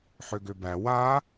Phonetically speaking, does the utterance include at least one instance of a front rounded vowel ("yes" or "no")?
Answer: yes